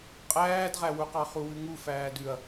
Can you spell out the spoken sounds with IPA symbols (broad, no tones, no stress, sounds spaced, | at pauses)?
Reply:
qʼ æː d ʁ æ w u q ɑ χ u w ʉ ŋ u f æː d ʉ ɐ̯